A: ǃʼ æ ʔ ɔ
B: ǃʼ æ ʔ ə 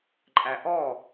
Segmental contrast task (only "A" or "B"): A